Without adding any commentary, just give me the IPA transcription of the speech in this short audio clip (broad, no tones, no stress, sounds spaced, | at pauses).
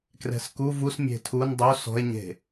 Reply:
k r ɛ̤ s k u v u s mʲ e̤ tʰ u n dˤ o s ɔ̤ e̯ ɲ e̤